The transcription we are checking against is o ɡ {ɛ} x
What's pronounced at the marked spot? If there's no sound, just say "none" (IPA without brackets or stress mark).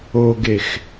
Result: e